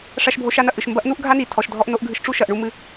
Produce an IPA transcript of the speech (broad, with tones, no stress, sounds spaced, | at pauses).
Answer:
ʂ a˧ ʃ bʱ o˧ ʃ a˧ n ɐ˩ ʔ ɨ˩ ʃ m b ɐ˥ ʔ n u˥ ʔ ɡʱ a˥ n i˩ tʰ ɔ˩ ʃ dʱ ɔ˧ ʔ n o˧ ʔ ɡʱ ɨ˧ ʃ ʈ͡ʂ u˥ ʃ ɐ˩ ʔ ɳ u˧ m ɨ˩